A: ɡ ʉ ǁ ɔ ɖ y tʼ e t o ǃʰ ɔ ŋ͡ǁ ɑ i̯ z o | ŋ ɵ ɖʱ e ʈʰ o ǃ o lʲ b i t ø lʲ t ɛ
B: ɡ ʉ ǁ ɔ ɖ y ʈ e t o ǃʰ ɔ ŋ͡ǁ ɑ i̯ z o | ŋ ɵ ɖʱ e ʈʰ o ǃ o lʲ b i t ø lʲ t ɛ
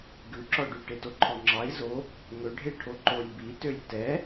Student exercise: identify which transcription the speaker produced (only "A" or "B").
B